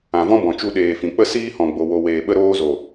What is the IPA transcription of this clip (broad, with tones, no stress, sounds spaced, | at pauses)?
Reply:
ã˨ v ɔ̃˦ b ɔ̃˨ t͡ʃ u˧ ɗ eː˨ f ĩ˨ k͡p ə˦ s iː˦ h ɔ̃˨ ɡ͡b o˨ w o˨ w eː˨ ɓ ə˧ ɾ oː˧ z o˨